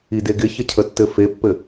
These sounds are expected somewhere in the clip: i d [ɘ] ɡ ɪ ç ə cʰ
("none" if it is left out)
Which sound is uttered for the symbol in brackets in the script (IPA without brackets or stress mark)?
e